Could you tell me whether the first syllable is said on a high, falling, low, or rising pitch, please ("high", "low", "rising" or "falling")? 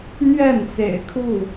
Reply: falling